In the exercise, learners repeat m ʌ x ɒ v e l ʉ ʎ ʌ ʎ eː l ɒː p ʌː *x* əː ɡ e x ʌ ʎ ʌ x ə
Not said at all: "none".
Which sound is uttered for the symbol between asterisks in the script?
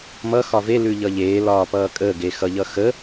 kʼ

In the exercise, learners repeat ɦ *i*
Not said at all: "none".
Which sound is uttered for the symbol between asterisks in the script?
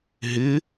ɪ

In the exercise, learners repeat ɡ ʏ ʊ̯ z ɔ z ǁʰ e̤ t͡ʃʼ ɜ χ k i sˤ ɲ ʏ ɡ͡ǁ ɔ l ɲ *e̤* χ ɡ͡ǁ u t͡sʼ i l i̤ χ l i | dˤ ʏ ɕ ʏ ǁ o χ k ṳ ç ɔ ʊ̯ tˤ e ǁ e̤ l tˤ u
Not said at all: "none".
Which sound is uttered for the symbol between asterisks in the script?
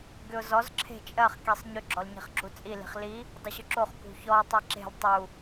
i̤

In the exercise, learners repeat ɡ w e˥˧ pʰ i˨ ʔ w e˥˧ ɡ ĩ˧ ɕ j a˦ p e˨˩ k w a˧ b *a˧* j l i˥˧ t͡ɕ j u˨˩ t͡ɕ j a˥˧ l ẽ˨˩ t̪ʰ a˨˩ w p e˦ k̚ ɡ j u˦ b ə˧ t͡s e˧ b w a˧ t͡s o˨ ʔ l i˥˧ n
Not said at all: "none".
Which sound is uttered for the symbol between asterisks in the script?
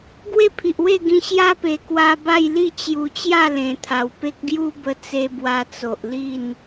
a˥˧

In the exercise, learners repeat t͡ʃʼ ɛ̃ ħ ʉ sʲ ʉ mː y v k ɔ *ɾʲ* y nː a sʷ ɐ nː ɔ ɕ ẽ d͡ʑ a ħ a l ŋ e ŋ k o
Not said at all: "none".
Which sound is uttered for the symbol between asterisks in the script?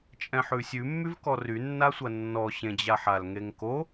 r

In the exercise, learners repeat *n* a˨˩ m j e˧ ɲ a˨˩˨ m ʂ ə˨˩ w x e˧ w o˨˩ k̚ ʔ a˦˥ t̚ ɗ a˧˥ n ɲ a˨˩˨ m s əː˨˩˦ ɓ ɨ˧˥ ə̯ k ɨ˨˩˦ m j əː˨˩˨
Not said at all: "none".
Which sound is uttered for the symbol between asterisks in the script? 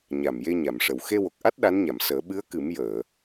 ɲ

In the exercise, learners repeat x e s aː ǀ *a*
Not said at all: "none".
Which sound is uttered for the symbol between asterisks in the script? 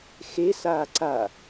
a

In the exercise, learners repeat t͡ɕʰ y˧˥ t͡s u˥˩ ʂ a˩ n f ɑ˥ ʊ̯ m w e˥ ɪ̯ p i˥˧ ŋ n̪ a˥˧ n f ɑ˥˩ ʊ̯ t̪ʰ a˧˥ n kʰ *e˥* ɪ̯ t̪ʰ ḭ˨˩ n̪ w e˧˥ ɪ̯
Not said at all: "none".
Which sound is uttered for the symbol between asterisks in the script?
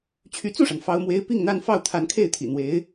e˥˩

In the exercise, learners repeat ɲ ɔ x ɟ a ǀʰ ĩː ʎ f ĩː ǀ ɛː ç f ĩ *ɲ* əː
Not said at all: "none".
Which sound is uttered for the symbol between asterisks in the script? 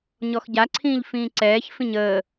ɲ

